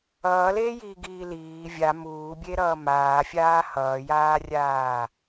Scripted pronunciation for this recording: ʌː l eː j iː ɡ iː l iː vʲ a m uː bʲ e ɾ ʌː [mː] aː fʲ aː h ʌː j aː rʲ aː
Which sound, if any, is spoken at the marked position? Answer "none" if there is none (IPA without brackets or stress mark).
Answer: m